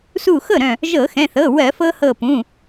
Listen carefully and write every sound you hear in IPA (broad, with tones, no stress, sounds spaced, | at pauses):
s u˧˩ x ɤ˥˩ ɾ œ̃˧˩ | ʒ ɤ˧˩˧ x ɛ̃˩˧˩ θ ɤ˩˧˩ w ɜ˧˩˧ f ɤ˧ h ɤ˧˩ p ũ˩˧˩